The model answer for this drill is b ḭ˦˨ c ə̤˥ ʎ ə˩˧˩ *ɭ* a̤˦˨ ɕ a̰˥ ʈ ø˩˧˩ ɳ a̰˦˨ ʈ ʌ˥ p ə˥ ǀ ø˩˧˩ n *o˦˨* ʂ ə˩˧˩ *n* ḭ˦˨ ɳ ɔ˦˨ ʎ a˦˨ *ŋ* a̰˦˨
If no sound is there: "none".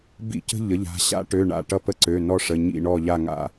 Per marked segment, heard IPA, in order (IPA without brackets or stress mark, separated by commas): ʎ, ɔ˦˨, ɲ, ŋ